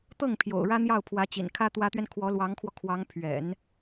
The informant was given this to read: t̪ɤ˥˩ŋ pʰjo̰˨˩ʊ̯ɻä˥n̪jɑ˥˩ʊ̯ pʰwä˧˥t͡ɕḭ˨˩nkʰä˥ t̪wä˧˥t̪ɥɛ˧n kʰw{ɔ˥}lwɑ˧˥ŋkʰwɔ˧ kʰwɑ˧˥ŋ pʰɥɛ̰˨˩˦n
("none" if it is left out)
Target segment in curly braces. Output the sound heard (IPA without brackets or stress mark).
ɔ˧˥